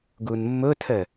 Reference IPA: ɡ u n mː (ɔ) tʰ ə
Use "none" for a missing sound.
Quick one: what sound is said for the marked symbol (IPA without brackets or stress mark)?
ʊ